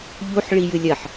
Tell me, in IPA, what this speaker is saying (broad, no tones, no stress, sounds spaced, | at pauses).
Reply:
ʎ u ħ ɭ i j ɨ lʲ ɐ ħ